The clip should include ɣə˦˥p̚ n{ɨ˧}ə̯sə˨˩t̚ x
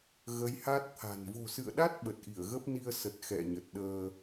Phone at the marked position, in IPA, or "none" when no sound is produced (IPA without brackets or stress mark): i˧